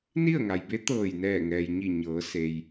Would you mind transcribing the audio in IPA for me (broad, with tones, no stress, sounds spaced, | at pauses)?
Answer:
n i˥˨ ə̯ ŋ a˩ j b e˧˥ t̪ ɤː˧˩ j n ɛː˧˩ ŋ ɛː˩ j ɲ i˧˩ ɲ ɤː˩˧ s e˩ j